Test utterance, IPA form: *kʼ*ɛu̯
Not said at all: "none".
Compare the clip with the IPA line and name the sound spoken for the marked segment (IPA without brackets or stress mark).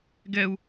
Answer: ɡ